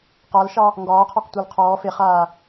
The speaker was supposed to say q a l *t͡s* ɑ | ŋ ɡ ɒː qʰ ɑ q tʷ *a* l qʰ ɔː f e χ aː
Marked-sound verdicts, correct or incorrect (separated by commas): incorrect, correct